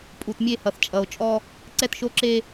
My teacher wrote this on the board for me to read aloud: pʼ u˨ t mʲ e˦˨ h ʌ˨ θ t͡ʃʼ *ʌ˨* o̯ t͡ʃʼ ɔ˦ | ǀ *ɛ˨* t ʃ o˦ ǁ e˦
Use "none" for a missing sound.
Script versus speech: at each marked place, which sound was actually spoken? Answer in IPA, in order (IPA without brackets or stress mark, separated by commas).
ʌ˨, ɛ˦